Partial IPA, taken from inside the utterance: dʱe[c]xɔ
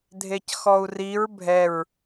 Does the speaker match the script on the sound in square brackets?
yes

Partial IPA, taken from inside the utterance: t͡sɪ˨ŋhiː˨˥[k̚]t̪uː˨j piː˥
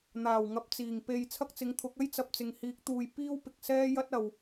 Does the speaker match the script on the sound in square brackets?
yes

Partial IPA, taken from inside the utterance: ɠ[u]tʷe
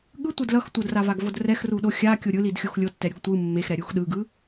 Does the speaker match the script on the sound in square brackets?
no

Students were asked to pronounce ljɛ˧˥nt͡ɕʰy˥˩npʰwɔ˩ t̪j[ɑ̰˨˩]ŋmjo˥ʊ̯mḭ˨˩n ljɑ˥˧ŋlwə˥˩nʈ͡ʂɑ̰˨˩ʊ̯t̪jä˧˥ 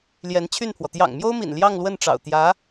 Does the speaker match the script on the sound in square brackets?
yes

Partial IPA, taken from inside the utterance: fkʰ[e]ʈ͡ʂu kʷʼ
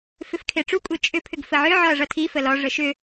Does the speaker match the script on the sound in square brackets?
yes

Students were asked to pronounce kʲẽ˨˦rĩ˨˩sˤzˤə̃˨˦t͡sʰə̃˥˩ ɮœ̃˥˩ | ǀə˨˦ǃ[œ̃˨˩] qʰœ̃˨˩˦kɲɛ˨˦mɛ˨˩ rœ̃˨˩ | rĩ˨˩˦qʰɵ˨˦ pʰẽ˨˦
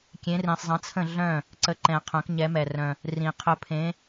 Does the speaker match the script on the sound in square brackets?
no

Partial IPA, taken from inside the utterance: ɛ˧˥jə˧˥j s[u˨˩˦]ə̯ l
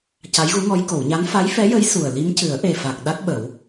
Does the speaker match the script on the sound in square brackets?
no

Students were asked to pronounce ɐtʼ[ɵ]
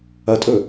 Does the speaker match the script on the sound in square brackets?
yes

